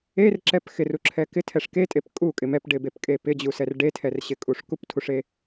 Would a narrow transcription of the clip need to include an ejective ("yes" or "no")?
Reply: yes